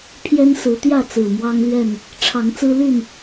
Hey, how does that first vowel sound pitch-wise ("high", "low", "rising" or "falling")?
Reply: high